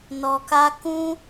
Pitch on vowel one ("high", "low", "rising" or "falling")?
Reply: low